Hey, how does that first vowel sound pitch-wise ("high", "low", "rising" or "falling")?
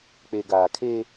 low